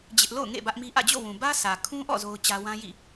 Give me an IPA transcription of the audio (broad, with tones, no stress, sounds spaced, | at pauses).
d͡ʑ ɪ˦ ʔ l o̰˦˨ ʊ̯ ŋ ḛ˦˨ b ä˦ ʔ m i˦ ʔ ä̰˦˨ d͡ʑ o̰˦˨ w ũ˨ b ä˦ sʰ ä˨ kʰ ũ˦ ʔ ɔ̰˦˨ z o˦ ʊ̯ t͡ɕ ä˦ w ã˦ j ḭ˦˨